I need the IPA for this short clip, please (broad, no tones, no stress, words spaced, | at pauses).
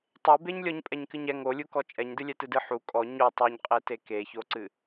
tˤebeɲlʲɔɲ pʼɛɲkɨɲɛ ŋolʲukɔ t͡ʃʼɛɲdɨlʲɛ tɨdɨ ħu kʼɔ ɲo tˤuɲqʼete keçoǀɨ